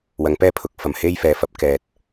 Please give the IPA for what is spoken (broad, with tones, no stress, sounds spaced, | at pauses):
w ɐ˨˥ ŋ p ɛː˥ pʰ ʊ˨˥ k̚ f ɐ˨˩ m h e˥ j f ɛː˨ f ɐ˨˥ p̚ k ɛː˨ t̚